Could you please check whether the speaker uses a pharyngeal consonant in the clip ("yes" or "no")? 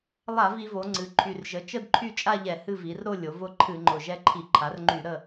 no